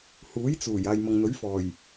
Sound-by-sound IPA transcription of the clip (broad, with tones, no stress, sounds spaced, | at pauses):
h uː˨˥ j t͡s uː˨˩ j aː˨ j m ɐ˨ ŋ n̪ ɵ˨˥ ɥ f ɔː˨˩ j